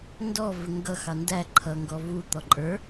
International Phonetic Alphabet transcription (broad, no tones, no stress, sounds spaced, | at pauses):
n d ɔ v ɪ ŋ ɡ ʌ x ɑ n d æ ǃʰ ʌ ŋ ɡ ɔ v u t̪ ɔ ǃʼ ə˞